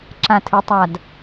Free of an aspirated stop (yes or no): no